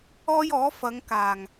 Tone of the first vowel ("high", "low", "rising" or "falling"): high